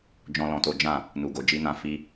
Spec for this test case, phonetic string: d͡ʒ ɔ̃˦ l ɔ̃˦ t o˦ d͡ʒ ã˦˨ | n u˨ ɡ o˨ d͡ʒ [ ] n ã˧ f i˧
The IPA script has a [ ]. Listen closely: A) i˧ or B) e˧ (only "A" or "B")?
A